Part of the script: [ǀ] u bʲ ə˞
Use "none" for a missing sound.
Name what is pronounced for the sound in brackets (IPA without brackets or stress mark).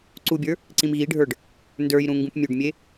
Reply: ǀ